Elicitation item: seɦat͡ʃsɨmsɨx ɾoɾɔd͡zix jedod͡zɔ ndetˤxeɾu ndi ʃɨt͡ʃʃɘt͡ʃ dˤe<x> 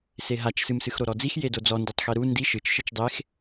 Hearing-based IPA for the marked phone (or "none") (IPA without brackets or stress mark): x